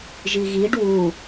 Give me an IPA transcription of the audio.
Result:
ʒiɣiɖ wu

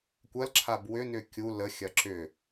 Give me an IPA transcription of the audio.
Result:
kʷɐl ǁʰabwʏnʏ kʲu ləxʲɐ ǁʏ

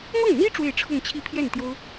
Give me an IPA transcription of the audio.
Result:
mɤ˥˩ŋn̪i˥ ʈ͡ʂwe˥˧ɪ̯ʈ͡ʂʰʊ˥˧ŋt͡ɕʰi˥˧pʰjɛ˥˩n t̪jo˥ʊ̯

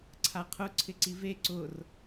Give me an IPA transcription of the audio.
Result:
ǀʰaqʰʊ ǀʰɪǀive ǀʊr

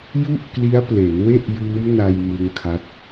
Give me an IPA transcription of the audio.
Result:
ju˥˩ʔkli˦˥a̯ple˩˦n we˥˩ʔjɯː˦˥mna˧j mɯ˦˥ŋkʰa˦˥t̚

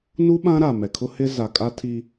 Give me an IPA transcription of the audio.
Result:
nu˦ɓã˦ ɾa˨mɛ˨kʰʊ˦hɪ˦ za˨kʼa˦tʰi˦

